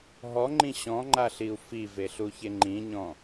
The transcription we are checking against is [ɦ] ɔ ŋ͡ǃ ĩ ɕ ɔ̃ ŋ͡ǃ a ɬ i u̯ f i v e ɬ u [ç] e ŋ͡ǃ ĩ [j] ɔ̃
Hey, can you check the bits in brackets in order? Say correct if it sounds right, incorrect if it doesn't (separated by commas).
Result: correct, correct, incorrect